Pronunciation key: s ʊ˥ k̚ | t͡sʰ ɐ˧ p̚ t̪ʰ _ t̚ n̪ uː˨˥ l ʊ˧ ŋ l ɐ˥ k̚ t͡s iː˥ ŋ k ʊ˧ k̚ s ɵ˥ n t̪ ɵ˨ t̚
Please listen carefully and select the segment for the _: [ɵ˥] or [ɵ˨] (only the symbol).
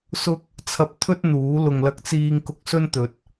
ɵ˥